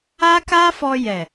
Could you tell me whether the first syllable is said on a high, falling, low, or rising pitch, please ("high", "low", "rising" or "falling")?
high